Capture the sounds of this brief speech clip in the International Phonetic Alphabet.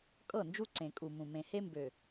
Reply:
kʼ ɤ˦˨ n d͡ʒ u˦ ǀ ẽ˨ kʼ u˨ m ũ˨ m ẽ˨ h e˦ m b ø˨

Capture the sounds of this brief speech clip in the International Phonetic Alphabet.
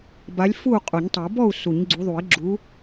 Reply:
b a˨˦ lʲ f u˥˨ qʼ u˨˩˦ ɲ tˤ u˨˩˦ b ɔ˥˨ u̯ s u˨˩˦ ɲ ɡ͡ǀ u˨˦ ðˤ u˨˩˦ i̯ ɡ͡ǁ u˨˦

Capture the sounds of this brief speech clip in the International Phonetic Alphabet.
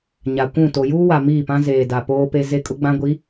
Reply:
ɲ a˨ kʷ ũ˦˨ t o˨ j uː˦ w a˨ m iː˦˨ p ã˦ z eː˨ d a˨ p oː˦ p e˦ z e˦ kʼ ʊ˦ ɡ͡b ã˦ ɡʷ i˨˦

